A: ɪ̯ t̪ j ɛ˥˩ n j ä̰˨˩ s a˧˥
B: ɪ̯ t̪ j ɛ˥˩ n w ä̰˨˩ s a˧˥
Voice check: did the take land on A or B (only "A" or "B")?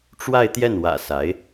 B